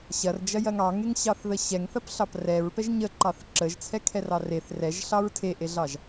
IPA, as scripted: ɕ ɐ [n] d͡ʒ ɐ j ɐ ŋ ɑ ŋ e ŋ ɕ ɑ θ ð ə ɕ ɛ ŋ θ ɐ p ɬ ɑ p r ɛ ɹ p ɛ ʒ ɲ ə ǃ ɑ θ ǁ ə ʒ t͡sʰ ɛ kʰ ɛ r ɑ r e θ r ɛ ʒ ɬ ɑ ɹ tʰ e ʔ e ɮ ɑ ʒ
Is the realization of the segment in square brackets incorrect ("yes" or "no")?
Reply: yes